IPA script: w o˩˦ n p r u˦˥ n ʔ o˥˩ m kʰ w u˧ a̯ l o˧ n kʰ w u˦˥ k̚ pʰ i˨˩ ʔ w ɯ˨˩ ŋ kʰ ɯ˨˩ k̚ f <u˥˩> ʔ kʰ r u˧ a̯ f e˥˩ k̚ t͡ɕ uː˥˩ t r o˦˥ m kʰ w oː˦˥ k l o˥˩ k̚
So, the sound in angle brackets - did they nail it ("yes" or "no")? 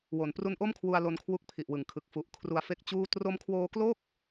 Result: no